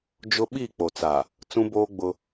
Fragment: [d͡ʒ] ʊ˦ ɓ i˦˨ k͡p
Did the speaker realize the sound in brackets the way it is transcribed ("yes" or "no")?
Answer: yes